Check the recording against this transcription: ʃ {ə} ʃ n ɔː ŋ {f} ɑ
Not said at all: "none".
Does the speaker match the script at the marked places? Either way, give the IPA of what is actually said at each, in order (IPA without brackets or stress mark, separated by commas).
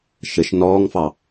ə, f